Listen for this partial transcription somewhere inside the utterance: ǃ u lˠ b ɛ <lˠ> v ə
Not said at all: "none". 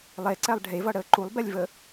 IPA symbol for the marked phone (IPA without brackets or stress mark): lʲ